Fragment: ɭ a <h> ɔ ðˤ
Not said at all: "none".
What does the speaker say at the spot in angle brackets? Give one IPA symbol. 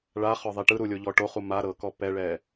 χ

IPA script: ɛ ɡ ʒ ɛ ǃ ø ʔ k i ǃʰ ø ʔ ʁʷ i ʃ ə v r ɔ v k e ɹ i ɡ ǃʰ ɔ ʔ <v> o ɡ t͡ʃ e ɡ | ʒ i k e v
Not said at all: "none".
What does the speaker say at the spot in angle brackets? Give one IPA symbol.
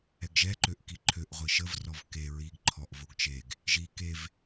v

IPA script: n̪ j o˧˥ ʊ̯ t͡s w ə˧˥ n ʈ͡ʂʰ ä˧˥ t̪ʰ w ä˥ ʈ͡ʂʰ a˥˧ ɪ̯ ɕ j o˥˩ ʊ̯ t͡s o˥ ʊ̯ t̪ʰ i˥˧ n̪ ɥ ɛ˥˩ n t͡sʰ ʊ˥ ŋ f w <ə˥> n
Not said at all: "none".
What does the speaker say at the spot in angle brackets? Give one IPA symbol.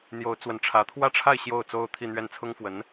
ə˧˥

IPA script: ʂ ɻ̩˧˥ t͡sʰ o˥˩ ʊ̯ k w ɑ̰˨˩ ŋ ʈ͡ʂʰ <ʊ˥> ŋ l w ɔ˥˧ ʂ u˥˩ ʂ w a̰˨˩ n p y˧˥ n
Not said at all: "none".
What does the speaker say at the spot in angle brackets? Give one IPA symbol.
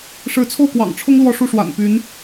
ʊ˥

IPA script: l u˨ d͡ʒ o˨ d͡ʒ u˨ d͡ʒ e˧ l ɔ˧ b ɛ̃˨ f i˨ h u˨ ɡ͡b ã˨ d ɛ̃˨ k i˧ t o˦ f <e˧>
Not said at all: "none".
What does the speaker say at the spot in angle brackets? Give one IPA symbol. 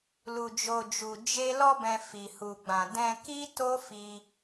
i˧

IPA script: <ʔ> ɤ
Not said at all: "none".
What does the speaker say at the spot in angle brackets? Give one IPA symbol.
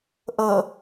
ʔ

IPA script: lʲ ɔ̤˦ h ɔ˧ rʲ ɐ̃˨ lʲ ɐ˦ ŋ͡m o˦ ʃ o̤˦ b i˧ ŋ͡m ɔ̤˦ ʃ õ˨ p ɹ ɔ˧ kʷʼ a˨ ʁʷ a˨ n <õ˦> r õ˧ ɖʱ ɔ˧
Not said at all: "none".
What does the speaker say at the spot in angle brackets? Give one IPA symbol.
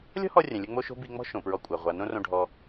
õ˦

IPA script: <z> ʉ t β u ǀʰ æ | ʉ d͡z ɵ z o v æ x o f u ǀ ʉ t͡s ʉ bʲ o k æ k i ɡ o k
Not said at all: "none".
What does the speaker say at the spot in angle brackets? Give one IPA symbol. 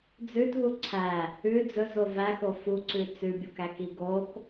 d͡z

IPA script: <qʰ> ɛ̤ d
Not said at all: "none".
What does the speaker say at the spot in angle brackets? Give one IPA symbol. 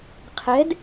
qʰ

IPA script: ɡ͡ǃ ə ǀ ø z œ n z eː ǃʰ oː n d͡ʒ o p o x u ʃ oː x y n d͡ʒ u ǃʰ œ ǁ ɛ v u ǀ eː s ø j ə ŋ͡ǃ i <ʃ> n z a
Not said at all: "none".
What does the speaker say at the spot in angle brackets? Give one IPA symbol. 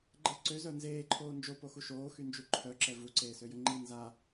none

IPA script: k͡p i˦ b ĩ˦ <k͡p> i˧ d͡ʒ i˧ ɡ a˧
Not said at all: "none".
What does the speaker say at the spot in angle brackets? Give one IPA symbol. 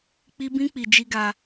k͡p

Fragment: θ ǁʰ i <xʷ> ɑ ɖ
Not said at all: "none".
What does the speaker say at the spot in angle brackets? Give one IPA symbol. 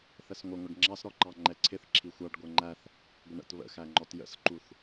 xʷ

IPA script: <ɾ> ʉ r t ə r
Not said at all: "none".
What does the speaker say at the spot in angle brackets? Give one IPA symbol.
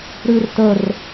ɾ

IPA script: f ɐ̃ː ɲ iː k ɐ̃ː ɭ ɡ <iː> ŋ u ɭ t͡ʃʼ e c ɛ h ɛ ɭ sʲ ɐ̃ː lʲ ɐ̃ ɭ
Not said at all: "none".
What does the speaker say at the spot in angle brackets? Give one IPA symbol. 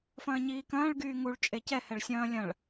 yː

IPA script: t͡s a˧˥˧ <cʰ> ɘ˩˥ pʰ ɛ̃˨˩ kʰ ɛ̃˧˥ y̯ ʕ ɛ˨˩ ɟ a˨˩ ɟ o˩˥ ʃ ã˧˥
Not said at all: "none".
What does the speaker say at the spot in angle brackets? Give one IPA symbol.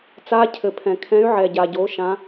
cʰ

